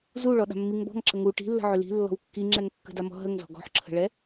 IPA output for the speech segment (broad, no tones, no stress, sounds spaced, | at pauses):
z u ɭ ɔ ɗ a̤ mː i ŋ b ɔ̤ ŋ ǁ ə ŋ u ʈ i̤ lː ə̤ ʕ ʏ l i̤ lː ɔ̤ w kː i ŋ͡ǁ ɛ ŋ kː ə̤ d a m ɔ̤ ɦ ə ŋ z ɔ̤ ɡ ɔ̤ ħ ǁʰ ə̤ ɭ ɛ